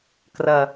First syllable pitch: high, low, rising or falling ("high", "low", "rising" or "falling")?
low